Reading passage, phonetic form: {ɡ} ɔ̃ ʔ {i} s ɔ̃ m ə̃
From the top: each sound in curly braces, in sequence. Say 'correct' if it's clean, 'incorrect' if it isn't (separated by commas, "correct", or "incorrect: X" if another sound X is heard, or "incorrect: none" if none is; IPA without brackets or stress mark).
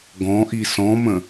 correct, correct